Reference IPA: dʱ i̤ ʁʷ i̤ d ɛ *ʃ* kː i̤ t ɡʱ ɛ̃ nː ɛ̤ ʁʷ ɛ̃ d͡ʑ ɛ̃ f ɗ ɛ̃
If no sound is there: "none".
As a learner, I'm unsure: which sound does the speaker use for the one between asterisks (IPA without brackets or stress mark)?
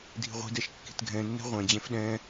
ʃ